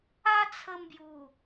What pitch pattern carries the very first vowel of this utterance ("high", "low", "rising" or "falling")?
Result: high